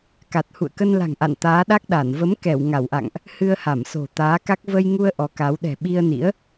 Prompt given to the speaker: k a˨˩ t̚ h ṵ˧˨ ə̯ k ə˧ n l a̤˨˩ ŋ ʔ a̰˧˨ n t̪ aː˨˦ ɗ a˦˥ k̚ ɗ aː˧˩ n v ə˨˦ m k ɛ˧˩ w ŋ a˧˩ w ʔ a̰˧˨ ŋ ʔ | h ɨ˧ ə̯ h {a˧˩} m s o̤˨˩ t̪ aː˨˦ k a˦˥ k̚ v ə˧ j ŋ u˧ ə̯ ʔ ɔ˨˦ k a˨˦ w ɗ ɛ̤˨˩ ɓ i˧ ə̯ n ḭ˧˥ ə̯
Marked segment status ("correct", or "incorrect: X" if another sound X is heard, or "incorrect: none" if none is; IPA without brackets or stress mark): correct